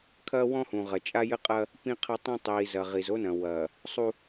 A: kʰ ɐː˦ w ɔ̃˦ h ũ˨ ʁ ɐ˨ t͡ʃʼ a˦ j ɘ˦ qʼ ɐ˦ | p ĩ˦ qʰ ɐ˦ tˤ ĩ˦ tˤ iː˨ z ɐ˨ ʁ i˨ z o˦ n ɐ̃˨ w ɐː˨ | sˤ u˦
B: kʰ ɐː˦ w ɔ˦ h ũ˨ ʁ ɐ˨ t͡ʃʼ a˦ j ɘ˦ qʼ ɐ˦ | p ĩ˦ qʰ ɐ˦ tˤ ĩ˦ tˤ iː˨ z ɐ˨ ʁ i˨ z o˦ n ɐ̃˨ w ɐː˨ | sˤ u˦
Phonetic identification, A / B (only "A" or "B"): A